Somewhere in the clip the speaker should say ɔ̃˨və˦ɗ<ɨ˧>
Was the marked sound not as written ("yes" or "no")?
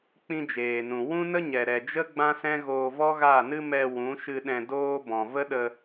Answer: yes